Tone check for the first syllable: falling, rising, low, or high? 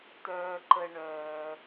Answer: low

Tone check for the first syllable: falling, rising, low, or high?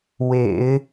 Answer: low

